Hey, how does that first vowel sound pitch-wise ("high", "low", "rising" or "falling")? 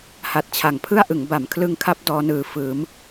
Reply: low